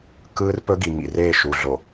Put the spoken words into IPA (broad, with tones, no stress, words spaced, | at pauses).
kɯː˦rpɵ˦ɡi˨ ŋḭ˨reː˦˨ʃu˨ ɮo˨